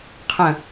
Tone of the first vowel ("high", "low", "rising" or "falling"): low